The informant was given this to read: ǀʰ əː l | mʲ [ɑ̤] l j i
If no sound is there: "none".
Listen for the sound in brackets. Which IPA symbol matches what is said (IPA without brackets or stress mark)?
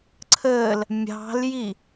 ɑ̤